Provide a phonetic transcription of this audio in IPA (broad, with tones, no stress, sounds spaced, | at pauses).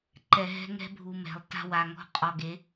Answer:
ǃ ɛ˨ ɦ ɛ̤˦ ŋ ɛ̤˦ bʱ u˨ m ɛ̤˨ lˠ t a̤˦ w a˨ ŋ ɔ̤˦ qʼ ɔ˨ ɡ e˨˦